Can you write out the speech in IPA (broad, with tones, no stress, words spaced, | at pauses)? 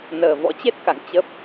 nəː˨˩vɔ̰˧˥t͡ɕe˦˥t̚ ka̰˧˨ŋt͡ɕə˦˥p̚